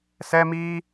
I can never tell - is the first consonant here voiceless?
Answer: yes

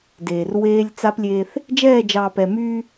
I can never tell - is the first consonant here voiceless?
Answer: no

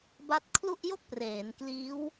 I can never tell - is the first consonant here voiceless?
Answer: no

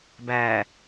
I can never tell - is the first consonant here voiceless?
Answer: no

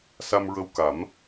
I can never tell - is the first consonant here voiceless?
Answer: yes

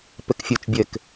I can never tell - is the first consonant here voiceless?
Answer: yes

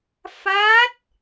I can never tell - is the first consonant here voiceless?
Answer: yes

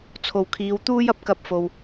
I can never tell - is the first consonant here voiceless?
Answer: yes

